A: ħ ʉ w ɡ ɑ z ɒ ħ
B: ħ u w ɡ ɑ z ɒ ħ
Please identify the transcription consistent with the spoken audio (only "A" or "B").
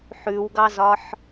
A